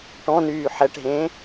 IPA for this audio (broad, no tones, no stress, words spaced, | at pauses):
ʈɔ̃nyː ħɛʈɦẽː